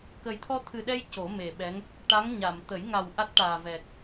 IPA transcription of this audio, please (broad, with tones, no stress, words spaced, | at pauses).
kə˨˩jt̪ʰɔ˧t̪ʰɨ˨˩ɗɛ˧j co˨˩˦me˨˩ɓɛ˧˥ŋ | ʈa˧˥ŋɲa˨˩˨m t̪ə˨˩˦j ŋa˨˩w ʔa˦˥t̚ʈaː˨˩vɛ˨˩k̚